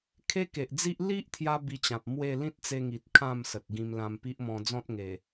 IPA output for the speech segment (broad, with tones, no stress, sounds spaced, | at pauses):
kʰ e˦ k e˨ ʔ d͡z i˦ ʔ l i˦ ʔ t̪ʰ j a˦ b i˧ t͡ɕ ã˨ p̚ m w e˥˧ l ĩ˦ t̚ t͡s e˧ ŋ i˨ t̚ kʰ ã˥˧ m s ə˨ t̚ ɡ ĩ˧ m l ã˧ m p i˦ ʔ m ɔ̃˧ d͡z ɔ̃˦ t̚ ŋ e˨˩